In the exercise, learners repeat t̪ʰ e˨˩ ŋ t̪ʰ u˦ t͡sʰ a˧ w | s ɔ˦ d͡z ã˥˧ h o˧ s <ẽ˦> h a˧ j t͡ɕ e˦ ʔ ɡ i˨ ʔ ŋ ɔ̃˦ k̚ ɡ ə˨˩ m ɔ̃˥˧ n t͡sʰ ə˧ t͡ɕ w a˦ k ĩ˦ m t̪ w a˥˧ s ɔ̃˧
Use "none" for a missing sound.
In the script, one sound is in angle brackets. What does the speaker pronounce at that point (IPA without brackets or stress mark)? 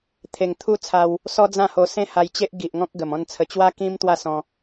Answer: ẽ˦